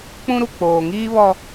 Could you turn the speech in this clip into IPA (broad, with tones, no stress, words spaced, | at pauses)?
k͡pũ˦ɾu˨ k͡poː˨ŋiː˦βɔ˦